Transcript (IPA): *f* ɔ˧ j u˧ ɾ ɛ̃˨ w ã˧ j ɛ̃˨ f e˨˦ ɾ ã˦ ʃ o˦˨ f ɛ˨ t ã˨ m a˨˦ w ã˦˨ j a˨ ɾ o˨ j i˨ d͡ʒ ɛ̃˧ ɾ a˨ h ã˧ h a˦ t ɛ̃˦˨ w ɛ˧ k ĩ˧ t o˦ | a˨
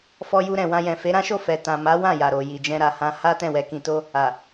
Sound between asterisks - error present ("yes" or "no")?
no